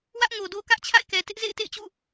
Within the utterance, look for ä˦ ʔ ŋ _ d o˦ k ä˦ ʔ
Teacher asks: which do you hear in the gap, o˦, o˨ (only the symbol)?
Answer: o˨